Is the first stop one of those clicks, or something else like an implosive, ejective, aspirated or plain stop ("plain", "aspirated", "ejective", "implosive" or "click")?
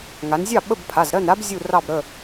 implosive